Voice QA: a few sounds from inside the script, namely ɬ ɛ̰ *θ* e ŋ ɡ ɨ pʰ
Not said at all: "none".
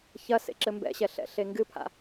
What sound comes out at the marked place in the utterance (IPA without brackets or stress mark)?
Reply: ɬ